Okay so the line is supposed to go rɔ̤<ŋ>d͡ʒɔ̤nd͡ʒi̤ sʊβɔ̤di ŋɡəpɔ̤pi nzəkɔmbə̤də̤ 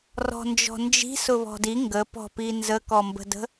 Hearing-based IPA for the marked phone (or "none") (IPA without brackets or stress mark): n